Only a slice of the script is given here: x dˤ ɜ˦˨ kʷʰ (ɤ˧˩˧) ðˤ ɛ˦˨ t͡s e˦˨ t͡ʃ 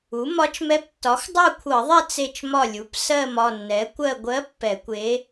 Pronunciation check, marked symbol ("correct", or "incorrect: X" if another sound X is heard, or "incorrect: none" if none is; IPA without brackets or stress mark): correct